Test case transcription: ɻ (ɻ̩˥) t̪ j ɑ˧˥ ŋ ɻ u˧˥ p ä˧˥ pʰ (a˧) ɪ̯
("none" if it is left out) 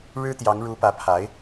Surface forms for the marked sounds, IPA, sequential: ɻ̩˥, a˧˥

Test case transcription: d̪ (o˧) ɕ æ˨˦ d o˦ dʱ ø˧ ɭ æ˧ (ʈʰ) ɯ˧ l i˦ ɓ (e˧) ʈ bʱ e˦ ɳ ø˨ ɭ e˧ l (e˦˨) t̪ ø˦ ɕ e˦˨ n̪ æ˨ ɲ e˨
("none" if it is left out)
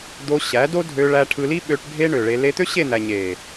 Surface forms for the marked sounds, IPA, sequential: o˧, ʈʰ, ø˧, e˧

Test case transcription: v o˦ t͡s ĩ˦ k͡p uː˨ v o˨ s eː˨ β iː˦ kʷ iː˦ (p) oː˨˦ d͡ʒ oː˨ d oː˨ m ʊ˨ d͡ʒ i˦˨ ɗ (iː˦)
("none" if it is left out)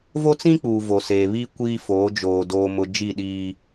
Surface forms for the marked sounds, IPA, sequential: f, iː˦

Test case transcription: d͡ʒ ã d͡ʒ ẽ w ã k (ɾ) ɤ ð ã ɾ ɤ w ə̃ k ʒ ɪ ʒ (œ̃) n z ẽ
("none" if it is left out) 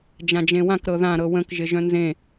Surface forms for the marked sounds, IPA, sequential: ɾ, œ̃

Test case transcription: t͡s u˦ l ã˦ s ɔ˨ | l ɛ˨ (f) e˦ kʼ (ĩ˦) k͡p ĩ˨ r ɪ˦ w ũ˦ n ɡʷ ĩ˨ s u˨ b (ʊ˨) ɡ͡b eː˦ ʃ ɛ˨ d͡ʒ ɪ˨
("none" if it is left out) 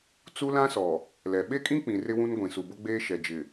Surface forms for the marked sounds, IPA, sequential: ɓ, ĩ˦, ʊ˦

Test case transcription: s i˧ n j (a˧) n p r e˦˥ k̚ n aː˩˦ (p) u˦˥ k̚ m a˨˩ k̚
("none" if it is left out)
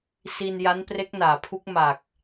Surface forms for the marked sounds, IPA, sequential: a˦˥, pʰ

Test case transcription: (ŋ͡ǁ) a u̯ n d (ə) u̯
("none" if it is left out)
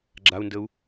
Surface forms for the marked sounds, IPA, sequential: ɡ͡ǁ, ə

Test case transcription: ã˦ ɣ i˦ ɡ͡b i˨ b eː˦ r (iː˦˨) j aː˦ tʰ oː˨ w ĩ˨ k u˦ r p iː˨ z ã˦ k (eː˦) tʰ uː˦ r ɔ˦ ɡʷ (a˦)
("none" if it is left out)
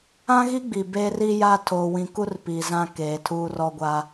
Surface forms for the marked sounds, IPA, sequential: iː˦, eː˨, a˦

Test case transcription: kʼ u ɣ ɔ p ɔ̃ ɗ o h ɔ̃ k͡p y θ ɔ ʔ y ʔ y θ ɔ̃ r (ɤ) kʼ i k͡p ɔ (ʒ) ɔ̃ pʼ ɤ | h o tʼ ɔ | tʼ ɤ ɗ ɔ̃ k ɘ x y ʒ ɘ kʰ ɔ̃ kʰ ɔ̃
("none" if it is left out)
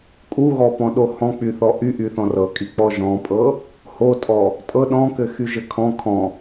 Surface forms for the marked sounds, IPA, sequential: ɤ, ʒ

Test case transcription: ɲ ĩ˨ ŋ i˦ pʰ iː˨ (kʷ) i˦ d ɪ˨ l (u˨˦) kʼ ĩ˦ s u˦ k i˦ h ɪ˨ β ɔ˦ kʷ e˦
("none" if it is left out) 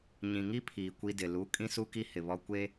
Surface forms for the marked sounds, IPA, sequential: kʷ, u˨˦

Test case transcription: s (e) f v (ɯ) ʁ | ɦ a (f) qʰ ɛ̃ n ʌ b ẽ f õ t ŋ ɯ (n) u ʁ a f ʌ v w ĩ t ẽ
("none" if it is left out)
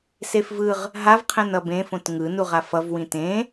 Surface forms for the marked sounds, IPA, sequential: e, ɯ, v, n

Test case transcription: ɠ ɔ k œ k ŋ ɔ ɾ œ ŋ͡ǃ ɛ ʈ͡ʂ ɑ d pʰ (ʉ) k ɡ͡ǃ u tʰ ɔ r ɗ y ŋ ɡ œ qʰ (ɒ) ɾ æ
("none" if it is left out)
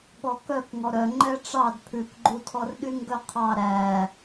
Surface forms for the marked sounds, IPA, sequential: ʉ, ɑ

